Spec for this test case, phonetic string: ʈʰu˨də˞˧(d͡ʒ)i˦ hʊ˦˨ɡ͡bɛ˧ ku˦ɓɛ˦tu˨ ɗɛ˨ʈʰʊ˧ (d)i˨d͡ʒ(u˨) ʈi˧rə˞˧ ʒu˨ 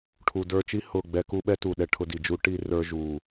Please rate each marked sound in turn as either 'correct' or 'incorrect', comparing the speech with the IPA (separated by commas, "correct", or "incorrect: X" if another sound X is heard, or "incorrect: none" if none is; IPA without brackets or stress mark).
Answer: incorrect: t͡ʃ, correct, incorrect: u˦